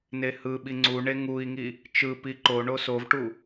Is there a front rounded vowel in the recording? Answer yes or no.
no